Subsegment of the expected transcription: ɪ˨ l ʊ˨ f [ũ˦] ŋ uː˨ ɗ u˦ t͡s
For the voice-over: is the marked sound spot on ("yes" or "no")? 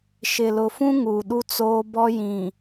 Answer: yes